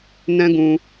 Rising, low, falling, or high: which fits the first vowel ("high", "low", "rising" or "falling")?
high